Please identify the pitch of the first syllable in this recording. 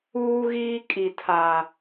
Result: high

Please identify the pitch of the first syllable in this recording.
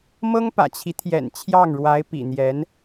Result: high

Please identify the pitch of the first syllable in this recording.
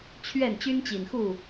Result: falling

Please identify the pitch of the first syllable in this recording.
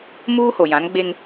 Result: high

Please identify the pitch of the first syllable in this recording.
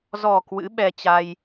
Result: low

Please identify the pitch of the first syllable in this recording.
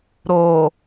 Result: low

